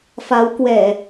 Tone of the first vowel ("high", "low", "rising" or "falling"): rising